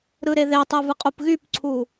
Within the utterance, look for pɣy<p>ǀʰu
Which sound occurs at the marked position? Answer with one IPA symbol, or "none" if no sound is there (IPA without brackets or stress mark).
p